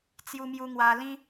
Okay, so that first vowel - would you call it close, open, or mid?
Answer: close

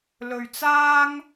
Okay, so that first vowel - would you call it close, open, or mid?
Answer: mid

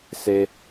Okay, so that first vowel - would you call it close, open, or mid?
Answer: mid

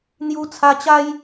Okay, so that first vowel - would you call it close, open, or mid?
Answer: close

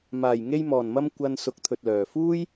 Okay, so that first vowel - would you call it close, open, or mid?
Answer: open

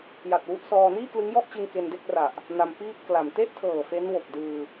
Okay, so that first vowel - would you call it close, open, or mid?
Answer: open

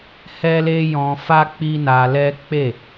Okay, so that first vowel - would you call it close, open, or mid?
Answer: mid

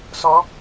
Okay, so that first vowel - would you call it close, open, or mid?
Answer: mid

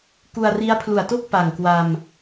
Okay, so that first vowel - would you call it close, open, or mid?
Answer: close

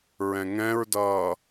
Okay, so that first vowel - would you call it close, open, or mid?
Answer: mid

